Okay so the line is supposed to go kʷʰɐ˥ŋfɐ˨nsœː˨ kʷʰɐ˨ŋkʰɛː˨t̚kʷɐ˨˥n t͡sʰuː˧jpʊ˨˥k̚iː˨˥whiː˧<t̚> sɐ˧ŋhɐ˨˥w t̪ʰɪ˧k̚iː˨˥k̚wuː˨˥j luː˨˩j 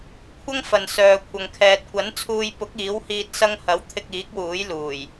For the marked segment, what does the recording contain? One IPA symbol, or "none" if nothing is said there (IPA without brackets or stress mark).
t̚